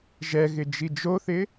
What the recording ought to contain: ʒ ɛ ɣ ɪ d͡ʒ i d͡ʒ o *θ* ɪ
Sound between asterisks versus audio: correct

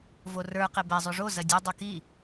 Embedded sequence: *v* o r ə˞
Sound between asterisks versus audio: correct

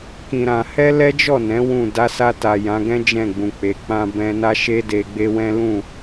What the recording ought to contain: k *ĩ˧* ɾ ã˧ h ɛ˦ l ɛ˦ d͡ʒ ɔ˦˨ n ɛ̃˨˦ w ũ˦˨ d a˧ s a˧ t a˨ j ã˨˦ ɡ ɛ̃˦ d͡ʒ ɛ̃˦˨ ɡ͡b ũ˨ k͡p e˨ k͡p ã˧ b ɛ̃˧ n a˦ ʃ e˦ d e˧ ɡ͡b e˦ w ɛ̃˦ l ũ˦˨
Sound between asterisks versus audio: correct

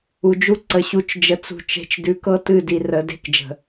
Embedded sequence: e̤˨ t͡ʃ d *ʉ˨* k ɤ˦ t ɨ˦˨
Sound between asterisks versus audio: correct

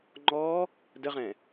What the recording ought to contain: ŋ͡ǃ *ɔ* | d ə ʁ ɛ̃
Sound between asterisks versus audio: correct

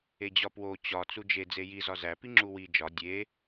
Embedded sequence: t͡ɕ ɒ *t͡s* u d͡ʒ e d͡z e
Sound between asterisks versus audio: correct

